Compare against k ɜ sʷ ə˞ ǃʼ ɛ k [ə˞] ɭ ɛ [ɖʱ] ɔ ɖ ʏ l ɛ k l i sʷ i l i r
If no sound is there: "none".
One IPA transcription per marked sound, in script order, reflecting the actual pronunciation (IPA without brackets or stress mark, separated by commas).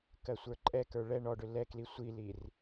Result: ə˞, ɳ